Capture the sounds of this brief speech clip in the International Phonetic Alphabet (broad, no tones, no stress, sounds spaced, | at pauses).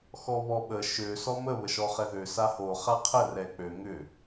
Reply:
x ɔ β ɔ ɓ ə ʃ ø s ɔ m ə β ə ʃ ɔ χ ɛ ð ø s a h o χ a qʰ ə r ɛ k͡p ø ŋ ʏ